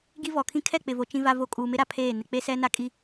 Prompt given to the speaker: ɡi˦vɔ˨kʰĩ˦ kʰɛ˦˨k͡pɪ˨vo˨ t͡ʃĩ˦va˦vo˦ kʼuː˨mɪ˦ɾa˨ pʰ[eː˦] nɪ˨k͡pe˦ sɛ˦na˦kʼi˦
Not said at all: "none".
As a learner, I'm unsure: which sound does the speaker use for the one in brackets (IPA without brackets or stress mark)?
eː˦˨